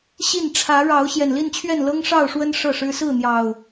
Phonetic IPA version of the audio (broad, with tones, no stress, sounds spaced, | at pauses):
ɕ i˥˨ n ʈ͡ʂʰ ä˨˦ ɻ ɑ˨˦ ʊ̯ ɕ j ɛ˨˩ n l i˥˨ n t͡ɕʰ ɥ ɛ˥˨ n l ɤ˦ ŋ ʂ ɑ˥˨ ʊ̯ ʂ w ə˦ n ʂ ɤ˥˨ ʂ ɻ̩˦ s ɹ̩˥˨ n̪ j ɑ˨˩ ʊ̯